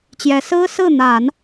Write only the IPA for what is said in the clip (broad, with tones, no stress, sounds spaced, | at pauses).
t͡ɕ j ɛ˧˥ s ɹ̩˥ s ɹ̩˥˩ n̪ a˨˩˦ n